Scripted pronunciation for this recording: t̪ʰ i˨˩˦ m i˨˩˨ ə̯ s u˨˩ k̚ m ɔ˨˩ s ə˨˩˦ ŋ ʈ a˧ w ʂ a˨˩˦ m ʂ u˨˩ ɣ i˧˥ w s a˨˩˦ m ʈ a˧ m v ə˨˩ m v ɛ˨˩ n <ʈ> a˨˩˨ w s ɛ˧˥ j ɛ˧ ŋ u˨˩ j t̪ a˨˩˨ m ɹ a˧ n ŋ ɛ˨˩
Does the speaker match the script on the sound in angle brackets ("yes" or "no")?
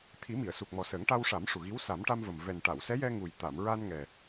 yes